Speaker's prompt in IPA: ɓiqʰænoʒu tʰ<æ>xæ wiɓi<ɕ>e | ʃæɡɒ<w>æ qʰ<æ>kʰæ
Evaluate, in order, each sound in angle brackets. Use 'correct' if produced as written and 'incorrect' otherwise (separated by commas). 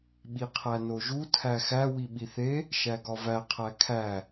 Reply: correct, incorrect, incorrect, correct